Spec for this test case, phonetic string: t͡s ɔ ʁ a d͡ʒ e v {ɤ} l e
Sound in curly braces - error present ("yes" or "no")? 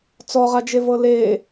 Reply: no